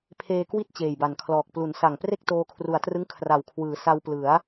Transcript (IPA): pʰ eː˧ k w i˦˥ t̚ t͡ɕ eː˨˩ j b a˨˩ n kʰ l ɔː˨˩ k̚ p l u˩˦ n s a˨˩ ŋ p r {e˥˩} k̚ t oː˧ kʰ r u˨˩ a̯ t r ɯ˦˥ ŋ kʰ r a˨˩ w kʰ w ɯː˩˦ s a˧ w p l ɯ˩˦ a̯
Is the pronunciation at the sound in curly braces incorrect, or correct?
correct